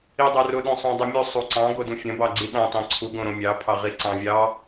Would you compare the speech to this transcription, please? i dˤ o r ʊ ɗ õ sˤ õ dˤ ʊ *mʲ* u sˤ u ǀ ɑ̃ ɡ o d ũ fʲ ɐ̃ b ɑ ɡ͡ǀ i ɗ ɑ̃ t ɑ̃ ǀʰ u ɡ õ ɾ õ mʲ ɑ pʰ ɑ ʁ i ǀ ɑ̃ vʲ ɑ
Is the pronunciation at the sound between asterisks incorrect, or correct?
correct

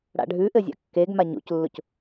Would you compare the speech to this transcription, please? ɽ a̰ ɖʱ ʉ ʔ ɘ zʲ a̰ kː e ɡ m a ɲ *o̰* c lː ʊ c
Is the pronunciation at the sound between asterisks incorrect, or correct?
correct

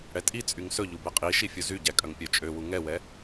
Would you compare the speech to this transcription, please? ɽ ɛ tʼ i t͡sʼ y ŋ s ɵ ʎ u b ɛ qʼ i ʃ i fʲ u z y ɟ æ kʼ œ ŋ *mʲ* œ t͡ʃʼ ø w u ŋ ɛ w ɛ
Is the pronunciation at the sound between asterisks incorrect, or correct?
incorrect: pʲ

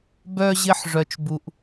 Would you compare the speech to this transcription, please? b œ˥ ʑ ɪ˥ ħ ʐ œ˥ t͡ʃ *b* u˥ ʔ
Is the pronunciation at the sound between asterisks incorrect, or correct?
correct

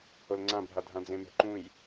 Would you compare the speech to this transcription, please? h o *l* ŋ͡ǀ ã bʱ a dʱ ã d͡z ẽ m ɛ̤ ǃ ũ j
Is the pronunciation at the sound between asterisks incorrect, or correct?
correct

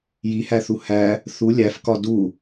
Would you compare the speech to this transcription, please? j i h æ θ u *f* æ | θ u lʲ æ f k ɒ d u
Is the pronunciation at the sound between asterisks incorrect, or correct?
incorrect: h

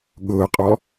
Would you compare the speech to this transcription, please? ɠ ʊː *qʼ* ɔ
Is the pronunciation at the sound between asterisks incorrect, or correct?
correct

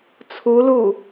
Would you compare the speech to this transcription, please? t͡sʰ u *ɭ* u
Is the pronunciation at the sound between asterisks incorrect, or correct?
incorrect: l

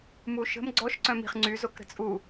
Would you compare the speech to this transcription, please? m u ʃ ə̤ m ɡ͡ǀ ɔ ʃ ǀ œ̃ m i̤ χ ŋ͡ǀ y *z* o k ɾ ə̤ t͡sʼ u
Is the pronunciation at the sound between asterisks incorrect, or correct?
correct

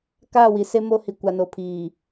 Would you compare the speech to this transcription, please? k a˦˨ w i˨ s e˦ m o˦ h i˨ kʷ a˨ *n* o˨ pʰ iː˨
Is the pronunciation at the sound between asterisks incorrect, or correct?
correct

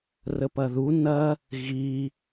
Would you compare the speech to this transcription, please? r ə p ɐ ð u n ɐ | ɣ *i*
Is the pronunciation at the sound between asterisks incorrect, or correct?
correct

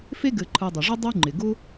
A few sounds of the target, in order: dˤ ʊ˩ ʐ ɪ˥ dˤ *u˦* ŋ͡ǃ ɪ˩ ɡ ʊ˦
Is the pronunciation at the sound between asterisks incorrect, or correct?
correct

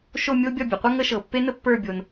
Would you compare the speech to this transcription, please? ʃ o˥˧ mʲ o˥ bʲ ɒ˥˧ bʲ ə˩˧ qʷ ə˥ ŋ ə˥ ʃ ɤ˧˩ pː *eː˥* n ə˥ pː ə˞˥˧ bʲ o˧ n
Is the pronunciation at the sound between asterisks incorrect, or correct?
incorrect: e˥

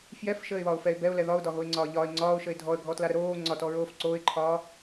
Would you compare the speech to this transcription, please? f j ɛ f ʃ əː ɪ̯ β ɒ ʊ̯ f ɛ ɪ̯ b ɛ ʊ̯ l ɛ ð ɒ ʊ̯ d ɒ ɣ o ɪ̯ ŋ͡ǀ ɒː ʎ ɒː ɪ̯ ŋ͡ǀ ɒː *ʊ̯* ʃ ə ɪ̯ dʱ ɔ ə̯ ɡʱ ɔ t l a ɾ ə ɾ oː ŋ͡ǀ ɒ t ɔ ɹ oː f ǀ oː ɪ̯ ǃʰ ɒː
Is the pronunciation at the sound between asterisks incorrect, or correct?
correct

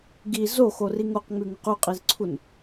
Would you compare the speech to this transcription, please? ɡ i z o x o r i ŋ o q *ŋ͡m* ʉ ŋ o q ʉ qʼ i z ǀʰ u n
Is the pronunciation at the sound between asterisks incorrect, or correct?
correct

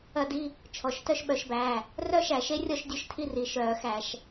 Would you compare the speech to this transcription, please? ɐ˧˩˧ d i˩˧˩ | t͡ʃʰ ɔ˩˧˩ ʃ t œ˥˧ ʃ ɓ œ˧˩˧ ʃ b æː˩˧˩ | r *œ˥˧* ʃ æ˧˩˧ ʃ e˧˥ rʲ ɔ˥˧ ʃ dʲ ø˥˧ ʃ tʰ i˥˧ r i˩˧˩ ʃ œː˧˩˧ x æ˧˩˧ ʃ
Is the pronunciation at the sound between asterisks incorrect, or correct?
correct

